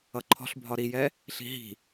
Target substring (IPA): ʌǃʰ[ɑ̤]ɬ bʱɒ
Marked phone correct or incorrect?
incorrect